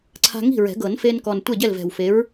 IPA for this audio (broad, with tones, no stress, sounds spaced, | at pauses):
ǀʰ a̤˧ ŋ i̤˥˩ ɹ ɛ̤˨˩˦ ɡ ɤ˨˩˦ n f e˧ n k ɔ˨˩ n tʷ ɛ˥˩ ɟ ɛ˥˩ l v ɛ̤˨˩ w f e˨˥ ɹ